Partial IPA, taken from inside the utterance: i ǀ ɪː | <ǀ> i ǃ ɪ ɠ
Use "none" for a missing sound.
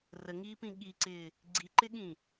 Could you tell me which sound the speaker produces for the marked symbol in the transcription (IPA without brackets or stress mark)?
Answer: ɡ͡ǀ